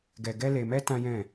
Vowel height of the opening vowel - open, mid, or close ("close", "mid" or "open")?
mid